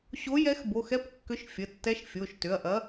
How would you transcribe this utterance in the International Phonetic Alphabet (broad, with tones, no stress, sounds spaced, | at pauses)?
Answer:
ɕ o˧˥ j ɛ˧˥ x b o˩˧˩ x ɛ˧˥ p kː ʏ˧˥ ʃ fʲ ə˩˧˩ tː ɛ˧˥ ʃ fʲ o˩˧˩ ʃ t ʏ˩˧˩ ɐ̯ ʔ ɐ˧˥